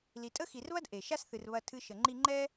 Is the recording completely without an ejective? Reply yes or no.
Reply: no